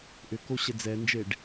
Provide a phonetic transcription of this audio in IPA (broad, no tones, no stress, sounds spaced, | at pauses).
ʔ ʏ k o ɕ ɛ d͡z ɛ n d͡ʒ e ɖ